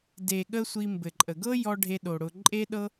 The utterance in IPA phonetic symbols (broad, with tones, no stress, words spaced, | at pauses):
de˨ɠə˧ sʷi˧mbɘ˨ǃʼə˨ ɡɤ˦ jɔ˧ ɖʱe˧ɗo˨ ɽʊ˧ ǃʼe˦ɗɤ˦